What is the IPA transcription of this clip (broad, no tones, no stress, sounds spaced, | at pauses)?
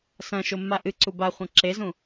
s ɐ̃ ʃ o mː a ʔ ɨ ǀ u b a χʷ ɐ̃ ǁ e z ũ